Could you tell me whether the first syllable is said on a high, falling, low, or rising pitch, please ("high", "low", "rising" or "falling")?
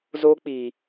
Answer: high